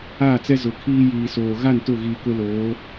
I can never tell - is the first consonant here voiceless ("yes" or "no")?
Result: yes